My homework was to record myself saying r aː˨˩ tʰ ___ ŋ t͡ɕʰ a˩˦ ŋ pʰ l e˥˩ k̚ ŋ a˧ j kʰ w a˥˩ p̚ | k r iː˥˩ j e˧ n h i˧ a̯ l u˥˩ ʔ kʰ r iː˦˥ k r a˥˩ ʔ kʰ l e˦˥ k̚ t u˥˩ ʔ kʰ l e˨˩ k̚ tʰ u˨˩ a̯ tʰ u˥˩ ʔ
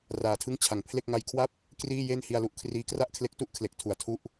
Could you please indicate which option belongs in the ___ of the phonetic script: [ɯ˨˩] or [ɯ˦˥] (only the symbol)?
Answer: ɯ˦˥